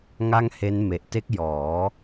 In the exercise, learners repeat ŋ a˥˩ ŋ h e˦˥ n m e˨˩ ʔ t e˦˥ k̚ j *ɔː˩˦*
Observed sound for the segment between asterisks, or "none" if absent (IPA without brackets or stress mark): ɔː˩˦